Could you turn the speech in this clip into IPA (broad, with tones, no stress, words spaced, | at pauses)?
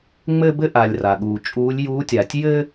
ŋ͡mɘː˥bɘ˥ ʔa˩lʲ ra˩ɠuː˩t͡ʃʼuː˧˥lʲ juː˧˥tʲa˩tʲ jɘː˥